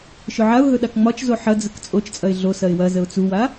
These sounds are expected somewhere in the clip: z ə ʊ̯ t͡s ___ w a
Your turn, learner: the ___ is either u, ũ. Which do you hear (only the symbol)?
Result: u